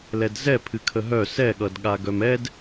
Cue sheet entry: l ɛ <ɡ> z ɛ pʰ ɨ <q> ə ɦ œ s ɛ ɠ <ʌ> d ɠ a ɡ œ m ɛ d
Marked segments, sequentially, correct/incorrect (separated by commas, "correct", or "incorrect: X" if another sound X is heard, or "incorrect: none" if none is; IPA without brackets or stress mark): incorrect: d, incorrect: kʰ, correct